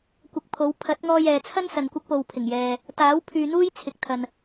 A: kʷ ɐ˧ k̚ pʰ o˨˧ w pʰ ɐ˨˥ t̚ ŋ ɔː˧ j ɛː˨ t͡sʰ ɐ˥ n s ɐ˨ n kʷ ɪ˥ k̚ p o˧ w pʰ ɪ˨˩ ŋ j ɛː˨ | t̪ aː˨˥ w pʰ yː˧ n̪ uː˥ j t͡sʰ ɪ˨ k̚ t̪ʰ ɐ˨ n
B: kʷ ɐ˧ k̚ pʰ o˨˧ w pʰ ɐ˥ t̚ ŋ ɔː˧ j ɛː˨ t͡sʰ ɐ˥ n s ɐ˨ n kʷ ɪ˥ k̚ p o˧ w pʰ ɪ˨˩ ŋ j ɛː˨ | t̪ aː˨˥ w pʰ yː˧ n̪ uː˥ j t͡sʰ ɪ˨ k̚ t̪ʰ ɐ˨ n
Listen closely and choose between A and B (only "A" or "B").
A